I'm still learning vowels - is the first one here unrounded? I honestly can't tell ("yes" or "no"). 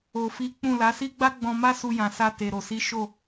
no